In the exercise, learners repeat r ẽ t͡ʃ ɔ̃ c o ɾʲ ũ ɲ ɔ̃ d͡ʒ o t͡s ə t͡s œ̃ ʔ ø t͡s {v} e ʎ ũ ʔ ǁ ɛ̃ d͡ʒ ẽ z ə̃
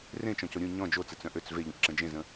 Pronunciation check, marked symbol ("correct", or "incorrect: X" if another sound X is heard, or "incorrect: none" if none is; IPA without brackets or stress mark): correct